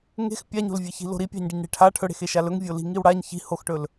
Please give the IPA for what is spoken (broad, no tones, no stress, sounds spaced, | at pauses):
ŋ e̤ x pʲ a ɲ o̤ l vʲ e ç i̤ l o̤ ɾ i pʲ a̤ ɲ ɖ i ɲ ɽ e̤ ʈʰ a ʈʰ ɵ ɽ e̤ x e ʃ a l ɵ ŋ vʲ o l i̤ ŋ i w ɽ a ɲ ç i̤ h o x ʈ ɵ l